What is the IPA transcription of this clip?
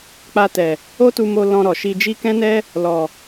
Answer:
k͡p a˧ t ɛ˨ | o˦ t u˧ m o˧ l ɔ̃˧ ɾ ɔ˨ ʃ i˧ d͡ʒ i˦ k ɛ̃˦ n ɛ˦ | l ɔ˨

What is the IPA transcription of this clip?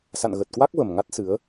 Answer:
s a̰˧˨ n ɣ ə˨˩ t̚ k w a˦˥ k̚ v ə˨˩ m ŋ a˦˥ t̚ s ɨ˨˦ ə̯

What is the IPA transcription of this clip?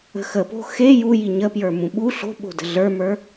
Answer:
ə̤ x ə p o̤ x e j u j i ɲ ə p j ə˞ m ũ ɓ u ɬ o̤ ɓ o̤ d ə̤ ɮ ə˞ m ə˞

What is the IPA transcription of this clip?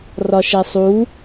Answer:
r ɒ ʃ ɛ sˤ u

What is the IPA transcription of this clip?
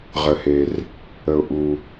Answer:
ʁ ə˨ h e˨ r | ə˨ ʊ̯ ʔ u˨

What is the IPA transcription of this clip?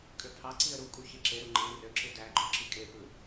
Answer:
kʼ ø pʰ ɑ ǀ i ə̯ ɾ u kʼ u ç e ǁ e ɾ u ŋ͡ǃ ẽ r ø ǁ ɯ d æ ɡ͡ǃ o ǁ i kʼ e p ɯ

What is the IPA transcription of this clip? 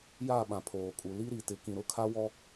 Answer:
j a˦˨ ɓ ã˨ pʰ oː˨ kʼ u˨ l i˦ ɾ i˨ t ɪ˨˦ k ĩ˨ ɾ ʊ˨ kʰ a˦ w ɔ˦

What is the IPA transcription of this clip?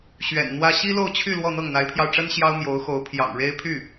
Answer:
ɕ ɥ ɛ̰˨˩ n n̪ w ä˥ ɕ i˥ l o˥˧ ʊ̯ t͡ɕʰ y˥˧ l w ɔ˥˧ n̪ ɤ˥˩ ŋ n̪ a˧˥ ɪ̯ pʰ j ɑ˧ ʊ̯ ʈ͡ʂ ə˥ n ɕ j ɑ˥ ʊ̯ m j o˧˥ ʊ̯ x o˧˥ ʊ̯ pʰ j ɑ̰˨˩ ŋ ɻ e˥ ɪ̯ pʰ y˥˩

